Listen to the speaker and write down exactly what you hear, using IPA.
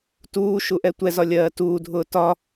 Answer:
t uː ʃ u ʔ ɛ tʷ ɛ z ɒ lʲ ɜː t uː dʱ ʊː t ɒ

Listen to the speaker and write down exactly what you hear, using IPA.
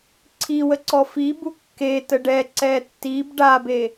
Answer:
ǀʰ i w ə ǀ ɔ f i b u kː e t ə ɖ ɛ ǀ ɛ tː i b ɖ a b e

